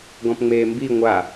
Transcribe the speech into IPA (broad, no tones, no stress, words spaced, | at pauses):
ɡɔ̃pŋ͡meːmbi ŋʷa